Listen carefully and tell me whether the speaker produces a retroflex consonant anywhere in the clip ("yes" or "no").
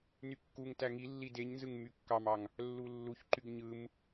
no